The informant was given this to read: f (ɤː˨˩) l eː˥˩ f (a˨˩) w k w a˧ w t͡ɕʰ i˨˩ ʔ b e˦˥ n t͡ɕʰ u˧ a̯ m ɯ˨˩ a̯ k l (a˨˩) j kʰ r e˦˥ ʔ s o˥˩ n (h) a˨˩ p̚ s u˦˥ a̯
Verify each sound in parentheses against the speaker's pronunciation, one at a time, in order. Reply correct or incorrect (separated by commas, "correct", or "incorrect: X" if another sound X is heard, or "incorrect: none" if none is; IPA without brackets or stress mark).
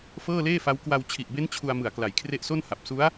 incorrect: ɤː˥˩, incorrect: a˦˥, correct, correct